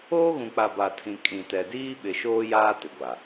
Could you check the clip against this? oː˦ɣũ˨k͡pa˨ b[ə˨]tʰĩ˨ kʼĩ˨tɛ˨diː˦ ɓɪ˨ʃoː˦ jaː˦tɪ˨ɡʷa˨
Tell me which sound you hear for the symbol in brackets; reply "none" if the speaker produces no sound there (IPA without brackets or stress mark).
a˨